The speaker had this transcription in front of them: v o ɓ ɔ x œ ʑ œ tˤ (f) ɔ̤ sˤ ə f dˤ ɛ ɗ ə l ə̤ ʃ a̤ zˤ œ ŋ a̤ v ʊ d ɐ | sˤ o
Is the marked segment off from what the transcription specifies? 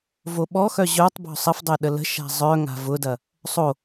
yes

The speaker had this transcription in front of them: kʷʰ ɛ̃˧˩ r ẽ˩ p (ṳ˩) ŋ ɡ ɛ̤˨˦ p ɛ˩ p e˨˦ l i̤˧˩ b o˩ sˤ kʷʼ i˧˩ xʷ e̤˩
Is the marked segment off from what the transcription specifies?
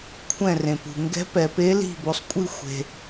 no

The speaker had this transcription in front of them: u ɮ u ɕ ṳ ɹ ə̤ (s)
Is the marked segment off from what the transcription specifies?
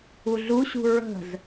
yes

